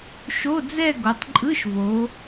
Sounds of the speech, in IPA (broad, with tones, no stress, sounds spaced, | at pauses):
ʃ o˧˥˧ d͡z ɛ˥˧ ɡ o˩˧ tˤ ǃʼ ɯ˧˥˧ ʃ v o˩˧